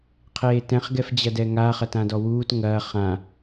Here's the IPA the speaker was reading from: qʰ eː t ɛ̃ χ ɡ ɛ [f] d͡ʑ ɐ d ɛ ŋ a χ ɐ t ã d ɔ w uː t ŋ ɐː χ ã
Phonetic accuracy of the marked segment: correct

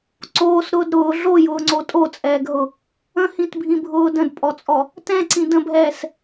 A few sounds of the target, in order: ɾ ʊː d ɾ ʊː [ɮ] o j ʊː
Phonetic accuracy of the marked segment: correct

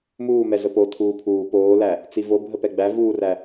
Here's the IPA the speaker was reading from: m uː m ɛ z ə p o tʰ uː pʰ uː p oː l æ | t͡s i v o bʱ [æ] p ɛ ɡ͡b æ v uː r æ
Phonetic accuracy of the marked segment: incorrect: ə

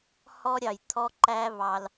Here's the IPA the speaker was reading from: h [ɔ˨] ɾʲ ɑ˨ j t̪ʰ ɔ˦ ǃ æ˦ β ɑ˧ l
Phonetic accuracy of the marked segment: incorrect: ɔ˦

